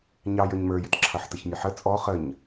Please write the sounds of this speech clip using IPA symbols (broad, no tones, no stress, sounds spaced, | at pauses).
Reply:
ɲ ɑ j ə˞ ɲ m ə˞ j ɪ t ǁʰ ʌ ħ t ə ç mʲ ə ħ ə t͡sʼ ɔ χ ə ɲ